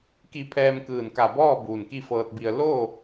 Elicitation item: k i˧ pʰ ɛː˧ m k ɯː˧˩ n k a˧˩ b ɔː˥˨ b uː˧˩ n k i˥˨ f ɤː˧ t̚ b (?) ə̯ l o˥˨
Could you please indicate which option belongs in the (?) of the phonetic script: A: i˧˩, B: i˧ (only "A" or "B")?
B